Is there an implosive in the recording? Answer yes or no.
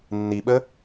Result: yes